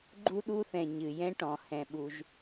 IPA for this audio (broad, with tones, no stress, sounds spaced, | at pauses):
ɡ͡ǃ u˥ ɗ u˥ θ ɛ̃˩ ɲ ɨ˩ j ɛ̃˥ ʈ ɔ̃˩ h ɛ̃˩ ɓ u˩ ʒ